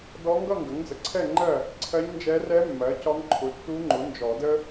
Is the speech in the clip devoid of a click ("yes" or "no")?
no